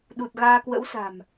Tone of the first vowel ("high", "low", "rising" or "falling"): low